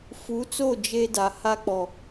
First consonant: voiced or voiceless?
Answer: voiceless